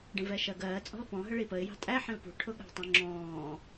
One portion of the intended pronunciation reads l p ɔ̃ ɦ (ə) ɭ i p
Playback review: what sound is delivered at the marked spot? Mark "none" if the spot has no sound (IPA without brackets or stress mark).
ə